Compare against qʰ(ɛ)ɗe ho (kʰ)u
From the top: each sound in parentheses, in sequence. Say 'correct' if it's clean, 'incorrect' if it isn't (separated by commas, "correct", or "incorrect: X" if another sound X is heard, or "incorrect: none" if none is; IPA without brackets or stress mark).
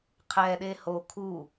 correct, correct